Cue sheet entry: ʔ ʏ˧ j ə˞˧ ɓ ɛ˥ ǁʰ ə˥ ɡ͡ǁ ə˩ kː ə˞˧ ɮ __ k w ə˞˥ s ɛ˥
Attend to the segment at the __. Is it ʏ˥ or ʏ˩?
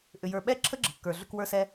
ʏ˥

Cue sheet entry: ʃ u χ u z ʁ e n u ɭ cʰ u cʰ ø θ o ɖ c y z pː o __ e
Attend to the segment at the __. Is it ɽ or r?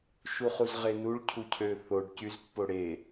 ɽ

